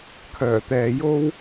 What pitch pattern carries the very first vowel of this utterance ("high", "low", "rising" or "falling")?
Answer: low